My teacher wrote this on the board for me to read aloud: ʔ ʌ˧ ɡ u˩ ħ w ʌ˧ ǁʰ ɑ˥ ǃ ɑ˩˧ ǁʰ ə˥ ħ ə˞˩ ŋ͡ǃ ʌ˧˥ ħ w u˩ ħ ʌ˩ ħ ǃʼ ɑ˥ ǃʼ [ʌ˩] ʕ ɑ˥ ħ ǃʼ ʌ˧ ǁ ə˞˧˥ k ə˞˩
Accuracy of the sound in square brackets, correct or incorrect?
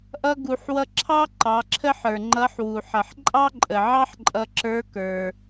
incorrect